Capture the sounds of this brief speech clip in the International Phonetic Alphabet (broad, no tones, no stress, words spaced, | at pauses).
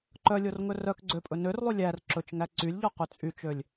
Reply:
ǃœlʲorŋɵ rœk ɡ͡ǀøpʼɵ nørlˠy lʲær ǁɵt͡ʃŋæ ǀylʲʎɔqy t͡sʼyt͡ʃølʲ